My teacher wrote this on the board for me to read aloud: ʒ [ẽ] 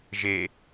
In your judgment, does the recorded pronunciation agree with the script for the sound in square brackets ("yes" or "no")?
no